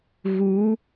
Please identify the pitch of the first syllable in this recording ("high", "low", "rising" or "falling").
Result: rising